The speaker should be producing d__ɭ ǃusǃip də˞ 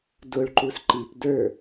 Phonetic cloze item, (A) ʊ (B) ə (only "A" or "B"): A